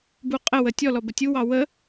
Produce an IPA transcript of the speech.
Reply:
buqʼəwə tʲɔlɔ bətʲuwɑ wə

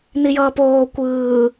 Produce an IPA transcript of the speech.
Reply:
nijʌːpoː kʷɯː

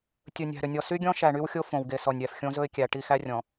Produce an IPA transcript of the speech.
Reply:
tʲɵ˨nʲæ̤˨ ɾʏ˨nʲɔ˨sy˦ɡʲɔ̃˦ ʃæ˨ɳy˦wxʲo˦ fõ˨wɡe˨sɔ˨nʲɾʲæ˨f xʲõ˦zɵ˦ɪ̯ kʲæ˨ ʈi˦˨xæ˦ rʲɔ̃˨

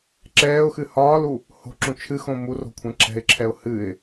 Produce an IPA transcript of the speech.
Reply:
ǁɛːʊ̯xɨ hɒːlu | ho̤ǁũ t͡ʃʰɨxõ muro̤kʷʰɛ̃ ǁɛ̤ɪ̯ǁʰɛʊ̯ hɨɪ̯

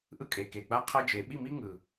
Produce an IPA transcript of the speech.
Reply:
ʔɯ˦kʼe˨ke˨ ɡ͡ba˦qʰʌ˦d͡ʒe˨˦ ɓi˦˨mi˦ ŋɯ˨

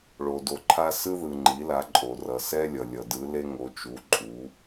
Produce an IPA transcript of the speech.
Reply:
ɭo˩do˩ ǃʰa˧ sɯ˧ðɯ˩ ŋ͡ǃi˩˧la˩˧ ǃʼo˩ rʌ˩sɛ˧lʲʌ˩ lʲʌ˩dɯ˩˧le˧ŋo˩˧ t͡ʃu˩˧ ǃʼu˩˧

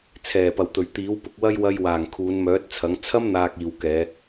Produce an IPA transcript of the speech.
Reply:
t͡sʰɛː˨˩pɐ˨˩wt̪ɵ˨˩ɥ t̪iː˨˥wpʊ˨˥k̚wɐ˥j wɐ˧jwaː˨˩ŋ kʰuː˨˧nmœː˨˥t̚t͡sʰɐ˨˥ŋ t͡sʰɐ˥mn̪aː˨k̚ iː˨wkɛː˨˧

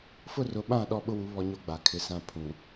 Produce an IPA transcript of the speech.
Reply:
fʊ˦˨rʊ˨˦ ɓã˦˨ ɗɔ˦ ɓʊ˦wu˨˦ βɔ˦ɲo˦ɡ͡ba˨ kʰɪ˨sã˦˨ pʰũ˨

